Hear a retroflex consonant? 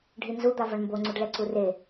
yes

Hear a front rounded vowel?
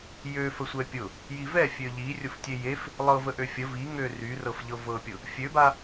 yes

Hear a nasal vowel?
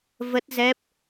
no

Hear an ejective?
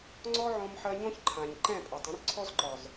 yes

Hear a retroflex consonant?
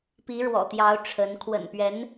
yes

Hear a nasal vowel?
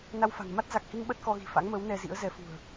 no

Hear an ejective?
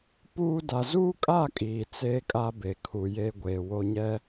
yes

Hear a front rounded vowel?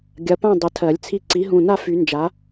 yes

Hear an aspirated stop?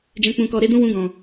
no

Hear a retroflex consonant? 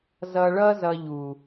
yes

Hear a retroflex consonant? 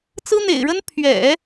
yes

